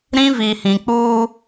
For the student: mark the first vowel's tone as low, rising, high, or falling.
high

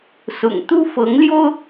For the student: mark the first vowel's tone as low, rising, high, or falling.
low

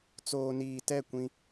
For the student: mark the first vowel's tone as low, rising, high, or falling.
low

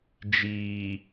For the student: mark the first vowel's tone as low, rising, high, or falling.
low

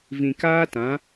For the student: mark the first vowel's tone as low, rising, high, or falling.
low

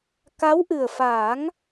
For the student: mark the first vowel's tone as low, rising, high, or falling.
rising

